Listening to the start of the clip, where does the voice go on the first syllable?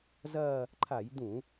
falling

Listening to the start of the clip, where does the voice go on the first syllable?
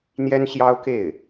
high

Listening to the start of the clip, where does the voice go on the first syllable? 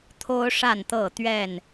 high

